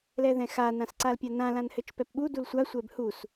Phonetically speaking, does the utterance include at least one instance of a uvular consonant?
no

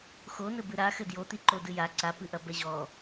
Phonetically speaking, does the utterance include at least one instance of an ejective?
no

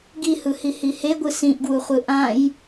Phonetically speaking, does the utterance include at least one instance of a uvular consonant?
yes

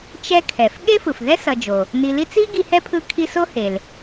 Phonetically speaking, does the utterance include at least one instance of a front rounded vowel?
no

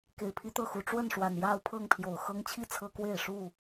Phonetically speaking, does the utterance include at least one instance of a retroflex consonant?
yes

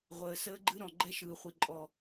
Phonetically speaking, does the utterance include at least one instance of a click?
yes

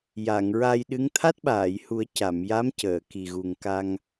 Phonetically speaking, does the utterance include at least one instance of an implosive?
yes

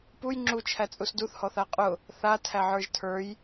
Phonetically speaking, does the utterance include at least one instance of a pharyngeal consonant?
yes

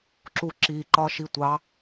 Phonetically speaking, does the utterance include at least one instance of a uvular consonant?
no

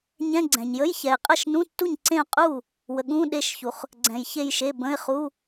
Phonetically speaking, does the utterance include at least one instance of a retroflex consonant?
no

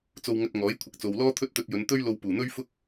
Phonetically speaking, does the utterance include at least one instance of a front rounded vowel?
no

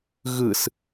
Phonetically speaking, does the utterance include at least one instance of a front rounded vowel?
no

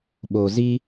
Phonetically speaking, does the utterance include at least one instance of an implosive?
yes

